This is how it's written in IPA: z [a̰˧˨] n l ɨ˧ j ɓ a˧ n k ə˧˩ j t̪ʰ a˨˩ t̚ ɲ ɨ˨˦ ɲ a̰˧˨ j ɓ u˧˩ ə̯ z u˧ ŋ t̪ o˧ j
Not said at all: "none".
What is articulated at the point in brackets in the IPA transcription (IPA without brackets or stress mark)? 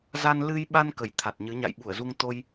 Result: a˧